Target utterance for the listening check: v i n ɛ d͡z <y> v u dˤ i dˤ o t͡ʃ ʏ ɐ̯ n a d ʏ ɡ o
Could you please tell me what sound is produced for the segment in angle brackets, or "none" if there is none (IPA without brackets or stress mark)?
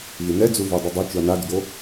u